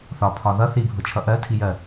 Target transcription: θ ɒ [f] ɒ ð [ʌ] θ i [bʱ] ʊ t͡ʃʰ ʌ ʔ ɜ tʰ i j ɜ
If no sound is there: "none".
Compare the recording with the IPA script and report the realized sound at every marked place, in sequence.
pʰ, ʌ, bʱ

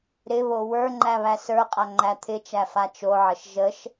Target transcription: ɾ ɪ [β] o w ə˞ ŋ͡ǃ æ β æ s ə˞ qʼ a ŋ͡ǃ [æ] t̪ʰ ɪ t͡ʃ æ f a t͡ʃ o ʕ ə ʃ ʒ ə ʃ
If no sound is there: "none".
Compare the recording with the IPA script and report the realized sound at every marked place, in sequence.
β, æ

